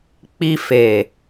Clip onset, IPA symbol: k͡p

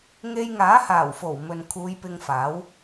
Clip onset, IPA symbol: ŋ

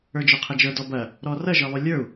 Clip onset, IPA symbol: ə˞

